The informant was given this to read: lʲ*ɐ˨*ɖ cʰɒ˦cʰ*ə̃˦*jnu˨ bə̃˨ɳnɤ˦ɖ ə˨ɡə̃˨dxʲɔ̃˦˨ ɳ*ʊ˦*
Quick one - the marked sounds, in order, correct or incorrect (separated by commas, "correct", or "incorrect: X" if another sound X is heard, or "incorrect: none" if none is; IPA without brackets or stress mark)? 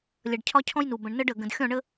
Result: correct, incorrect: ɔ̃˦, incorrect: ə˦